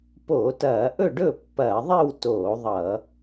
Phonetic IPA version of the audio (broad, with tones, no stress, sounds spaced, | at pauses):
p o˧˩˧ t ɐː˧˩˧ ʔ ɵ˥˨ ɖ ɵ˥˨ pː ɐː˧˩˧ ðˤ i˥˨ w t oː˧˩˧ ðˤ ʌ˧˩˧